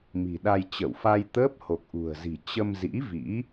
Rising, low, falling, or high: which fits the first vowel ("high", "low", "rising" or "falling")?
low